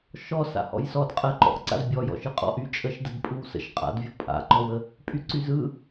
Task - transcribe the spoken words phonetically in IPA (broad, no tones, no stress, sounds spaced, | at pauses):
ʃ ɔ s a̰ h ɔ̰ j s ɔ d qʼ ə ǃ ɔ̰ ʔ ǀ a̰ z bʲ ɔ j ɔ̰ ʃ ɯ qʼ ɔ̰ ʔ y t͡ʃʼ ə ʃ d ə d pʼ ɯ w s ə̰ ʃ qʼ a̰ d vʲ ɔ pʼ a̰ ǃ ɔ w ə | pʼ y ǀ y z ɯ